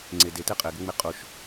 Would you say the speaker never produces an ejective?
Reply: no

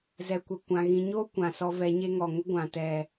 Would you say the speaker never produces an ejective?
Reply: yes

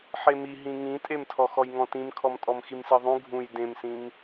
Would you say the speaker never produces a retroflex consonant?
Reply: yes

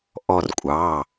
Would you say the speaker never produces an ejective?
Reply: no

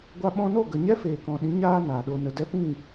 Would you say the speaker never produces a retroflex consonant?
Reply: yes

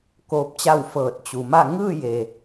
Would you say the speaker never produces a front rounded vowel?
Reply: yes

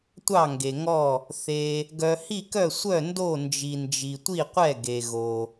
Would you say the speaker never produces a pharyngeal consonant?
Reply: yes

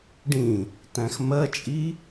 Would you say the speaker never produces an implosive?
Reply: yes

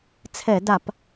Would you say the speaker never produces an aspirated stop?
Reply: no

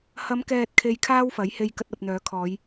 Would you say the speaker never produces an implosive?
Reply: yes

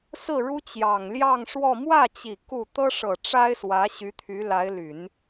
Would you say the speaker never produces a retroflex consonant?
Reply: no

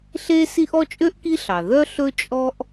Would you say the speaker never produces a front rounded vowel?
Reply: no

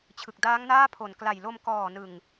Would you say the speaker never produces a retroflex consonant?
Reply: yes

